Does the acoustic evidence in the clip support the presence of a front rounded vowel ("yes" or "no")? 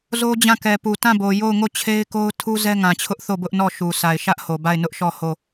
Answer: no